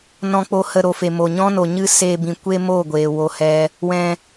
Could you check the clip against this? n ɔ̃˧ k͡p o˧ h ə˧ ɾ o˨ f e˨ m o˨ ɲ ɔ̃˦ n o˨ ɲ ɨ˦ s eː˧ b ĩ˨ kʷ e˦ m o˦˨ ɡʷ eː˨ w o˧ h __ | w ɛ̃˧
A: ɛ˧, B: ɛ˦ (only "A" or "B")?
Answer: A